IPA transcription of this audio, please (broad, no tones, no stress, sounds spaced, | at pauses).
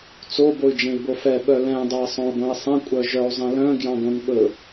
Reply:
t͡s o b o y̯ d͡ʒ ẽ i̯ b o f ɛ ɓ œ l ɛ̃ dˤ ɵ i̯ sˤ õ u̯ ɡʷ œ̃ i̯ sˤ ẽ kʷʼ œ ʒ œ u̯ zˤ ẽ l œ̃ ɡ j ɑ̃ ɡ õ n ɓ ɵ